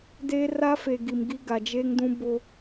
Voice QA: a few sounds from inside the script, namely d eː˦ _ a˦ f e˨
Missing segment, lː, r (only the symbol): r